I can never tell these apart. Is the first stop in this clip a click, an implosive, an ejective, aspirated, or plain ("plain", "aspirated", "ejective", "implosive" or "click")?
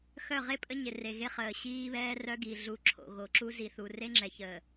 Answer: ejective